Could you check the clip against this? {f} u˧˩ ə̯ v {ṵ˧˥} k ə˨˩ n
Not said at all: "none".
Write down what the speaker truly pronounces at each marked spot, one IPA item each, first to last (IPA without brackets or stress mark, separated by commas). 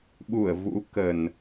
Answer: ɓ, ṵ˧˥